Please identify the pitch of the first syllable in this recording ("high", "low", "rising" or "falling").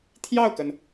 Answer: falling